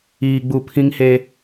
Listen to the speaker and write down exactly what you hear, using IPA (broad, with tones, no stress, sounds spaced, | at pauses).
iː˨ ɡ͡b u˨ pʰ ĩ˦ ŋ h e˦